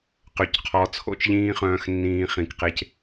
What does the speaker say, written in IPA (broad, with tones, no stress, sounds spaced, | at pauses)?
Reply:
q ø˨ c qʰ ɔ˨˦ t͡sʰ o̰˦ t͡ʃ ʎ ĩː˦ χ œ̃ː˧ x nː ĩː˧ χ ĩ˨ k q e˧ c